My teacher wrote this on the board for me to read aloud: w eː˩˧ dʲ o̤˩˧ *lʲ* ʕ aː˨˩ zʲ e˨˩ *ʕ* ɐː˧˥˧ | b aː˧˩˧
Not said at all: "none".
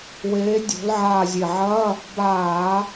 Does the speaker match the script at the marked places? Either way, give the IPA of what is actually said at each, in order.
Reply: l, ʕ

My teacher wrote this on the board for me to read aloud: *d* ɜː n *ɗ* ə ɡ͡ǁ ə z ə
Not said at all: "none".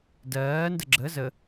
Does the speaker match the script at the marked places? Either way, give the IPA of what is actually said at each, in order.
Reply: d, d

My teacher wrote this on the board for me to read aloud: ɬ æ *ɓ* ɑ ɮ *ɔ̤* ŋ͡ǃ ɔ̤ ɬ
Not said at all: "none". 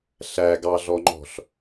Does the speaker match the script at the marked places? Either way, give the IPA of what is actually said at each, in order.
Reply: ɡ, ɔ

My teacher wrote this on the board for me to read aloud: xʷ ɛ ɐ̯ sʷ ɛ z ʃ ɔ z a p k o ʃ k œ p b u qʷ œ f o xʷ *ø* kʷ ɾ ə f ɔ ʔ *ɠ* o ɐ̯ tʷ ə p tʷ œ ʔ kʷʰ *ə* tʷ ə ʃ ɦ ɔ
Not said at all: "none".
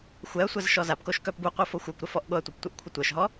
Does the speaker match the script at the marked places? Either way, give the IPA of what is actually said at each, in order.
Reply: œ, ɠ, ə

